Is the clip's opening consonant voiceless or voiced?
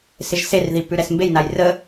voiceless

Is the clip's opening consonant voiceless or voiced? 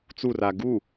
voiceless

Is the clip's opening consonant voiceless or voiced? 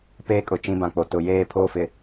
voiceless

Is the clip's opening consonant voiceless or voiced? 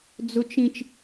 voiced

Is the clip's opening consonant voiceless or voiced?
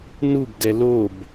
voiced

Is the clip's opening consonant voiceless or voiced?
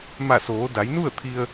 voiced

